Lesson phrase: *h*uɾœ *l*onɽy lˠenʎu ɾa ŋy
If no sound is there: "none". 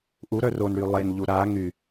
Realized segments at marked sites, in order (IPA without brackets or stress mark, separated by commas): ʔ, r